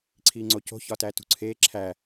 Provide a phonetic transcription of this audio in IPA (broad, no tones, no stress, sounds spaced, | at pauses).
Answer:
ǀʰ iː ŋ͡ǀ o c o̤ ç ɒ t æː t ṳ ǀʰ eː ǁʰ æː